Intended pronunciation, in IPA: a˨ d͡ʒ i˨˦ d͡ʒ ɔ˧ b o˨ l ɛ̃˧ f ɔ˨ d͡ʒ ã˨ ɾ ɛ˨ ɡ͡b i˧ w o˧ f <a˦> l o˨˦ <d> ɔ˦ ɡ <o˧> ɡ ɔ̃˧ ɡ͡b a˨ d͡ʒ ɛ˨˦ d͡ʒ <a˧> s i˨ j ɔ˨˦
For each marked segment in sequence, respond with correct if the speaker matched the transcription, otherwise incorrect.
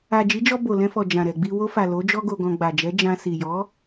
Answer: incorrect, incorrect, correct, incorrect

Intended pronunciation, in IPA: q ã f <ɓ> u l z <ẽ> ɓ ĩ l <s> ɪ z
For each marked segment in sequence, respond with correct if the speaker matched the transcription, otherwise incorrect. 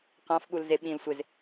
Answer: correct, incorrect, incorrect

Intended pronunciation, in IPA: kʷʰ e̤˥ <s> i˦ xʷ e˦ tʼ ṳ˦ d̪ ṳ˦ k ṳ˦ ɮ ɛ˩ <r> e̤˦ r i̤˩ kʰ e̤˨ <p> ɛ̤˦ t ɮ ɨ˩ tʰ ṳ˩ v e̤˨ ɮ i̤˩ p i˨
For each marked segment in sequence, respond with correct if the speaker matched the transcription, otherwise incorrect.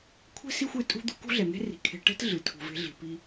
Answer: correct, incorrect, incorrect

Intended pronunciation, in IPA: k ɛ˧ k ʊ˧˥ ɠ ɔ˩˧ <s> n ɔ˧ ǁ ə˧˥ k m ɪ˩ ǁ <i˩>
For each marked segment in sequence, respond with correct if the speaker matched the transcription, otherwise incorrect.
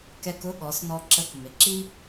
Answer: correct, incorrect

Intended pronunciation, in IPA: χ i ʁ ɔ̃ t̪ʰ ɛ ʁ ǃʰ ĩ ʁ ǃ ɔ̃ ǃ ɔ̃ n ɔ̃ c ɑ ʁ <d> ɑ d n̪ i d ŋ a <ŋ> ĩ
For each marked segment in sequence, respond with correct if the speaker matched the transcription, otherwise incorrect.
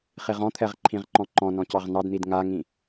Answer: incorrect, correct

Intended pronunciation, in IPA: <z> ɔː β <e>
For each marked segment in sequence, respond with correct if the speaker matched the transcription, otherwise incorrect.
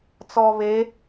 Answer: incorrect, correct

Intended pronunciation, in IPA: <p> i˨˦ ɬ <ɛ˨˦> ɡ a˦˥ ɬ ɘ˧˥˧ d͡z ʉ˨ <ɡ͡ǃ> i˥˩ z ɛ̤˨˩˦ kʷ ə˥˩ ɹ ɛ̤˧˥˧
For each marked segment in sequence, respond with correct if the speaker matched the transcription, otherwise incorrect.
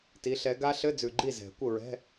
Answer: incorrect, correct, correct

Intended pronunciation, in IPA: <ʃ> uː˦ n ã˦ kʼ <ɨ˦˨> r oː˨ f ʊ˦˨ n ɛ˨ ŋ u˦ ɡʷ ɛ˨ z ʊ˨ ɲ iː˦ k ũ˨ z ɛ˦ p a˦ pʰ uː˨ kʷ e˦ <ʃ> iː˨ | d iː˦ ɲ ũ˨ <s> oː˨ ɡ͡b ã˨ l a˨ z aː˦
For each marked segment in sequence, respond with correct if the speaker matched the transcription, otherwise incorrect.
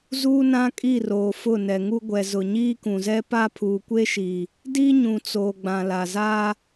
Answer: incorrect, incorrect, correct, incorrect

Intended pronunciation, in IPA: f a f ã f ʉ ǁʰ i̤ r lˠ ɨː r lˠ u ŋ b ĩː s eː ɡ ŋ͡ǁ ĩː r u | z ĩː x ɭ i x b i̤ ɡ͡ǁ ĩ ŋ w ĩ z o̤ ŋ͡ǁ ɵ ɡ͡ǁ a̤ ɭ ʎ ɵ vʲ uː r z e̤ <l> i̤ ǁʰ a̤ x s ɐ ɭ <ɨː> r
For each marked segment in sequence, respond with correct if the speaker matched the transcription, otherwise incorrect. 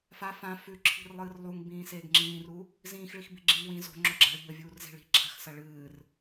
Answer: incorrect, correct

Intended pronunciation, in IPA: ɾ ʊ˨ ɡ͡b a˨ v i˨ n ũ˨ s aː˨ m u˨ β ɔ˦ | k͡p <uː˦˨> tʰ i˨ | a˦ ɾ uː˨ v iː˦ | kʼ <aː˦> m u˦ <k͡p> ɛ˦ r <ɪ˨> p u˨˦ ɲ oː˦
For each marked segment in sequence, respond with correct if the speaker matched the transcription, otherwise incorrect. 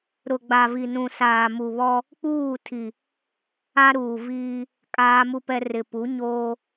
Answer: correct, correct, incorrect, correct

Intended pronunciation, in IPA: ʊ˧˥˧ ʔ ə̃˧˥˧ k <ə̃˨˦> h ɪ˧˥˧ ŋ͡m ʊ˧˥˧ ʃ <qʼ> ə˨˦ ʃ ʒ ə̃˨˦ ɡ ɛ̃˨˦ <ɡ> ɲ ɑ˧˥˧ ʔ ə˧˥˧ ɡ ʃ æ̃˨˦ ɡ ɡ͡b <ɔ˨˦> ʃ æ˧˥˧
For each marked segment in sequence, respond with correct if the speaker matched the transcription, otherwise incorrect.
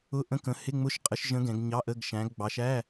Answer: correct, correct, correct, incorrect

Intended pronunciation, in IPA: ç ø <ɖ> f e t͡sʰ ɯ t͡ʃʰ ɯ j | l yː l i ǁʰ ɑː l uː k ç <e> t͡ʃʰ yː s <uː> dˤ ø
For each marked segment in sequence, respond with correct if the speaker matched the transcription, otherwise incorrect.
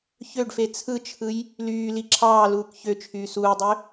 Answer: correct, incorrect, correct

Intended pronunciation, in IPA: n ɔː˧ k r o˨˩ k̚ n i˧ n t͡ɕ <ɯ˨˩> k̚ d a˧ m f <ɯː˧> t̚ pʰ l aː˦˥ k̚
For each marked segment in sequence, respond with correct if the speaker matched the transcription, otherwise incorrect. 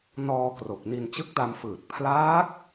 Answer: incorrect, incorrect

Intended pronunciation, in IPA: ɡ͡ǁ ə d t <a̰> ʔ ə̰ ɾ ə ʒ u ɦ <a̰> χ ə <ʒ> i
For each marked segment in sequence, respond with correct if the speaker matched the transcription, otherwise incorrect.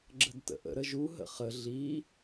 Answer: incorrect, incorrect, incorrect

